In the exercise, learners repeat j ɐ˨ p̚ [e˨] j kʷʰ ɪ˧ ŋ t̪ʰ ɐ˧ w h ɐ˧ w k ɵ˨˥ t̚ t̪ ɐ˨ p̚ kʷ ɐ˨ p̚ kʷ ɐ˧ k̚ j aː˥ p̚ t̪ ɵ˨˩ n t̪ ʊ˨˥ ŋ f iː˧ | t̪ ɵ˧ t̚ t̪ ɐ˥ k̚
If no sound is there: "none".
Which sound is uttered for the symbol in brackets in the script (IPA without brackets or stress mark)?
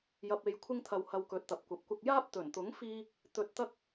e˨